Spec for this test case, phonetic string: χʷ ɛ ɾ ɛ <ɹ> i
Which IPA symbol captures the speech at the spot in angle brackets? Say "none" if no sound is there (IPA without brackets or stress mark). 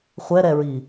ɹ